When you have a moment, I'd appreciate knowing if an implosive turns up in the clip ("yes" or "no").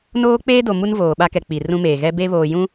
yes